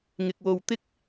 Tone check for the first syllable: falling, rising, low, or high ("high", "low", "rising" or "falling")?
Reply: low